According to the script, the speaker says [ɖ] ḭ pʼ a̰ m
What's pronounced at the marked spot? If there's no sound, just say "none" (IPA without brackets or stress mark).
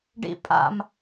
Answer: ɖ